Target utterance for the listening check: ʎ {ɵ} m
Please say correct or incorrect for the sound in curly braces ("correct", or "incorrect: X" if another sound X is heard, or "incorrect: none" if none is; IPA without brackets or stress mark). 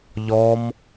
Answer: incorrect: ɔ